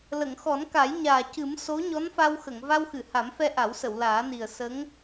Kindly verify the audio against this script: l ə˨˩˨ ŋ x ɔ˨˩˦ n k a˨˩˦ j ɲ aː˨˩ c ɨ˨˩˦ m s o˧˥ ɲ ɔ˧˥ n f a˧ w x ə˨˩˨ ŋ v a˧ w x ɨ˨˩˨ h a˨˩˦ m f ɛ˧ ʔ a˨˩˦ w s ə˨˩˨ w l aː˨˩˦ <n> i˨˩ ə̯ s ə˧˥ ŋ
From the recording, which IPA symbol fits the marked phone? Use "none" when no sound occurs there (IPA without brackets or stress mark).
n